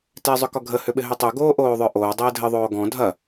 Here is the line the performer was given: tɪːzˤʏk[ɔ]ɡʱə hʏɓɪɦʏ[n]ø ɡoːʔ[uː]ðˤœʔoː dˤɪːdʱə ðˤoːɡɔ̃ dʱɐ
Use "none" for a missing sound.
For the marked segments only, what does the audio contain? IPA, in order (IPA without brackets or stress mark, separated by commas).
ɔ, tˤ, oː